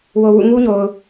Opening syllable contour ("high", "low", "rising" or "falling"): low